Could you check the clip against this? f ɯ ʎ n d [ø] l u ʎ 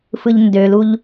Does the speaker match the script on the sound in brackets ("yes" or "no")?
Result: yes